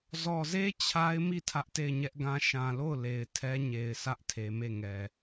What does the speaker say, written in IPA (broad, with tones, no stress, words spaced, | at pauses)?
zɔ˨ze˦ t͡ɕʰa˦ɪ̯mi˦˨ tʰä˦ʔte˦˨ɪ̯ɲɛ˦ʔɡã˦ ʃã˨lo˦˨ʊ̯ le˨ɪ̯tʰɛ˦ ɲe˨ɪ̯ sä˦ʔtʰe˨me˦˨ŋɛ˨